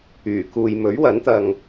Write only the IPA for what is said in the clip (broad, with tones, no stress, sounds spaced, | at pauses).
yː˨˩ k uː˨ j m ɵ˨˥ ɥ w ɐ˨˥ n t̪ ɐ˨ ŋ